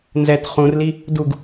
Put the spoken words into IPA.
nzɛt χũrli | duɡ

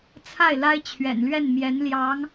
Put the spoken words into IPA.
t͡sʰa˥˩ɪ̯la˥ɪ̯t͡ɕʰɥɛ̰˨˩nlɥɛ˥˩n mjɛ˧˥nljɑ˧˥ŋ

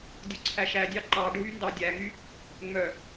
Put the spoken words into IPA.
dʲoǀʰæʃædʲɑ ǃɑ ɖʱyndɑdʲæŋy | ŋ͡mœ

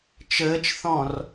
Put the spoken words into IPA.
t͡ʃəːt͡ʃθɔ̃r

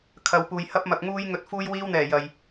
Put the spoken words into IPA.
kʰɐ˨wpuː˨jhɐ˥p̚ mɐ˨k̚ŋuː˧j ŋɵ˨˥t̚fuː˧jwiː˧wn̪ɛː˨˩ jɐ˨j

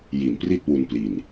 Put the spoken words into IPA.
ji˨˩npri˥˩t̚wu˧npli˨˩n

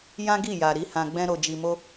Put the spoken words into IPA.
jã˦ɡi˦˨ja˨ ɾi˨˦hã˧ɡ͡bɛ̃˦ ɾo˧d͡ʒi˧mo˦

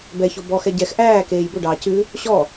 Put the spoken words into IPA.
bɛço bɔxɛ ɟɛx ʔæːkeːj bɵɖɑː cʉ | ɕɔ

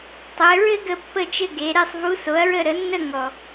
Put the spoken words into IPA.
tˤɘ˩˧ɹɘ˥ ɡə˥˧pːə˥˧t͡ʃɘ˥˧ ɡe˩˧ ɾe˥˧sˤvu˧˥so˩˥ɐ̯ɹə˥˧ ɾə˩˥nːə˥˧ ŋɔ˨˩

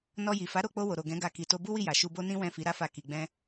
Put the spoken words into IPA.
nɔ˧ji˨ fa˨˦ɾo˦˨k͡po˧ wo˨ɾo˨ɡɛ̃˨˦ɡa˧ ki˨to˧ bu˦wi˦˨ja˨ ʃu˧bo˦nĩ˦ wɛ̃˦˨fi˨˦ ɾa˦fa˦˨ ki˧ɡ͡bɛ̃˦

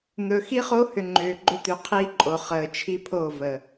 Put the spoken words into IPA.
n̪ɵ˨xi˦χo˦hʏ˨ ŋ͡ǃʏː˨ɡ͡ǃʏ˦ t̪ʏ˨qʰiː˦ǃʼo˨ χəː˨t͡ʃʰi˦pʰo˦˨ və˨

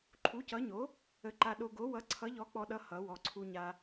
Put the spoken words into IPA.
ǃʰu˨˥cʌ˨˥ɲo˨˥ | ə˧ǃa˧ ɗo˧ɡo˨˥wʌ˨˥ ǀʰʌ˨˥ʎɔ˨˥k͡pɔ˧ɗʌ˧ hʌ˨˥wɔ˧ ǀʰu˧ɲa˧

